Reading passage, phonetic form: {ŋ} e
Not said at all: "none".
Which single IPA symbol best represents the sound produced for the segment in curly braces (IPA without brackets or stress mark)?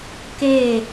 k